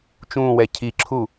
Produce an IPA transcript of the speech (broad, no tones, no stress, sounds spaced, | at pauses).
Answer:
t͡ʃ ũ w ɛ cʰ i ǁʰ u